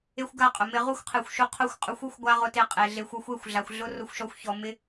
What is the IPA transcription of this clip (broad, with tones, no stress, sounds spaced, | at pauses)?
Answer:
e˦ xʷ ɡ a˦˨ qʼ ʊ˨ m ɪ˧ ʁ u˦ xʷ qʰ e˨ xʷ ʃ u˧ qʰ o˧ xʷ qʼ ʊ˨˦ xʷ u˧ xʷ ɡʷ a˦ ʁ ʊ˧ t e˧ qʼ e˨ ɮ e˨ xʷ ɔ˧ xʷ e˦˨ xʷ ɮ a˨ xʷ ɮ ʊ˦ r ʊ˧ xʷ ʃ ɔ˧ xʷ ç ɔ˨ m ɪ˦